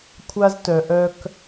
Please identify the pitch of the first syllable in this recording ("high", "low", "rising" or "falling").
high